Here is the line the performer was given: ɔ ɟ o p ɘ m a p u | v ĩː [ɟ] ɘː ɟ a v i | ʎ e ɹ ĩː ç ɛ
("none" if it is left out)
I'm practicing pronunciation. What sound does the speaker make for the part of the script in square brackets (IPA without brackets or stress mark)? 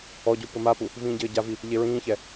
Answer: ɟ